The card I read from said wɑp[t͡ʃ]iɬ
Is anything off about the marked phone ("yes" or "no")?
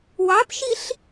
yes